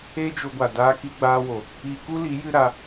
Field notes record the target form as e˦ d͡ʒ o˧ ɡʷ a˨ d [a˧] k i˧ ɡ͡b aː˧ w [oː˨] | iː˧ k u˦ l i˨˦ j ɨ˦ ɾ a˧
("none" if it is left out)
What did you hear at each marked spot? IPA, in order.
aː˧, o˨

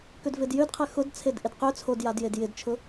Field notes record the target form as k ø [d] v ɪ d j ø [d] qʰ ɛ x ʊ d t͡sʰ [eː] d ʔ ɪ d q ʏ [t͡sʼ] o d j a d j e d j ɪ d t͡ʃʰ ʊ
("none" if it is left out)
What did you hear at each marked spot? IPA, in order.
d, d, e, t͡sʰ

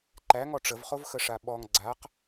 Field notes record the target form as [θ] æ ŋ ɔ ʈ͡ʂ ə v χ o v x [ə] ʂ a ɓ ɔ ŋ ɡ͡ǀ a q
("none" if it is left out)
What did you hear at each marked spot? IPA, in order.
ǃ, ə

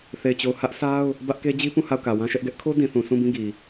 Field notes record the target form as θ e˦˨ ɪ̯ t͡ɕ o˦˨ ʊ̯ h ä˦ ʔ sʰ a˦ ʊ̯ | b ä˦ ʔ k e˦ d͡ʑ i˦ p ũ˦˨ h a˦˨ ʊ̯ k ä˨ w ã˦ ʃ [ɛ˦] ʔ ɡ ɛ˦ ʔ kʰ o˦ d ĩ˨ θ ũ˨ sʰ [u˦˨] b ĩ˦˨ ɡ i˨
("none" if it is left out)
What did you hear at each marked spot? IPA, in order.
ɛ˦, ũ˦˨

